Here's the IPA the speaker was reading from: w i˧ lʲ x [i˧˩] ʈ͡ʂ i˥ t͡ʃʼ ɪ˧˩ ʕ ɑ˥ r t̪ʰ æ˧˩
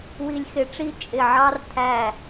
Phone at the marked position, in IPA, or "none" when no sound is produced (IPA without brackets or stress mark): ɪ˧˩